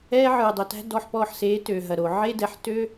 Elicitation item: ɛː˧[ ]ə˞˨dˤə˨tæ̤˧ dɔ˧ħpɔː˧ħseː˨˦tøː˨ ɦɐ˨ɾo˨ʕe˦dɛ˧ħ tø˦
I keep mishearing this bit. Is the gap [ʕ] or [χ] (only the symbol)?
ʕ